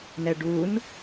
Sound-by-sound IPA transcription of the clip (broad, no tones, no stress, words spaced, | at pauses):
nɛɖun